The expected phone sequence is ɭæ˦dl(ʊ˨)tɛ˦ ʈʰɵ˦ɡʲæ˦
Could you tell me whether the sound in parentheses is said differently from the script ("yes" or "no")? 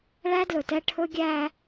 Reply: yes